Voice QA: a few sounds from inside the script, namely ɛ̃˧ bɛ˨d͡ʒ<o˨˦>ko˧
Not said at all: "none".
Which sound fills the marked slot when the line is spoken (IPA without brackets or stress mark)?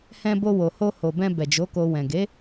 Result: o˨˦